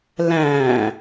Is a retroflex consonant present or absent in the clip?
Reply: absent